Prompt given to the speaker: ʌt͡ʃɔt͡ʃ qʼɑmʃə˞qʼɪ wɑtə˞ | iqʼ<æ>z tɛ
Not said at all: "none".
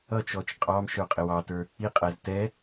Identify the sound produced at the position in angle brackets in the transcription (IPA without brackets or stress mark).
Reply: æ